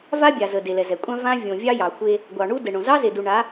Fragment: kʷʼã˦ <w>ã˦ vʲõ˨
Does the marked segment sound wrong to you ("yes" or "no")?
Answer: yes